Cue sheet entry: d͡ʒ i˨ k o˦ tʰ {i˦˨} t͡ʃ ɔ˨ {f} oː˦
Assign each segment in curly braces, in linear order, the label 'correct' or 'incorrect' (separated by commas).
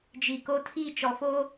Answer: correct, correct